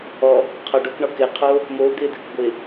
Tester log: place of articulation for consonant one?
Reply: uvular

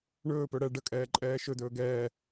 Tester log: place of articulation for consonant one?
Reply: retroflex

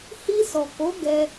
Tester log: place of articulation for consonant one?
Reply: glottal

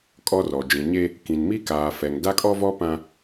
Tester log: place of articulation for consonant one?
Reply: velar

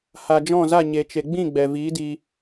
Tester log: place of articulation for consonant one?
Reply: glottal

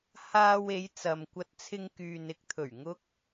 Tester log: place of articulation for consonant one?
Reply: glottal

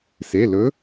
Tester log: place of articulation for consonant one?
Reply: alveolar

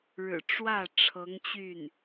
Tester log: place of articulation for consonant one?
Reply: retroflex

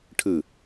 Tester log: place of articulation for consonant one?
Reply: retroflex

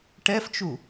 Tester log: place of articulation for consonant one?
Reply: retroflex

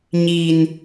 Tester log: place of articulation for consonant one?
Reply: palatal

